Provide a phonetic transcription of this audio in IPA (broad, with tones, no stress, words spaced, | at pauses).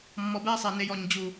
mːɔ˨bɛː˦sˤɛ˨ ne˨j ɔ˨ɲ d͡ʑu˨